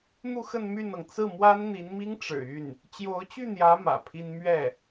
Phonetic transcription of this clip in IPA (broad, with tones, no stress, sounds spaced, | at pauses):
n̪ u˥˧ x ə˥˧ n m y˥˩ n ɤ˩ ŋ t͡s ɹ̩˥˩ m w a˥ n n̪ i˧˥ n m i˥ ŋ ʈ͡ʂ ɻ̩˨˩ y˥˩ n | t͡ɕ j o˧˥ ʊ̯ t͡ɕ y˥˩ n̪ j ä˧˥ m ä̰˨˩ pʰ i˥ n m ɥ ɛ˥˩